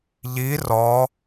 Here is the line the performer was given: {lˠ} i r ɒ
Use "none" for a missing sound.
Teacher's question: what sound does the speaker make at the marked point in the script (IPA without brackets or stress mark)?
ʎ